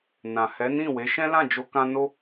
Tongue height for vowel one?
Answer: low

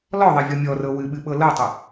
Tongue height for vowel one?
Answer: mid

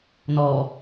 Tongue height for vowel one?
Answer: mid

